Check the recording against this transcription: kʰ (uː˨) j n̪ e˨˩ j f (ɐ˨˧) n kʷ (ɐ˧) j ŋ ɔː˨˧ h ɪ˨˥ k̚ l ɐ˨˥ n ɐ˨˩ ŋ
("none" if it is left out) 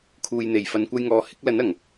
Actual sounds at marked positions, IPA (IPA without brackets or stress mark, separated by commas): uː˨, ɐ˨˧, ɐ˧